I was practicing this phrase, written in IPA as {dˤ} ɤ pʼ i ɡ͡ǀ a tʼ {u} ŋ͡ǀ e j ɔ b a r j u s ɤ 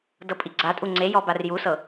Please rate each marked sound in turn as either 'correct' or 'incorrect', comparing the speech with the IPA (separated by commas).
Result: incorrect, correct